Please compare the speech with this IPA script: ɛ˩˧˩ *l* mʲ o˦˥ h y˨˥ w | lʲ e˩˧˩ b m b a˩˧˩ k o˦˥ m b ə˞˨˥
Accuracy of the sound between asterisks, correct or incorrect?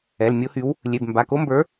correct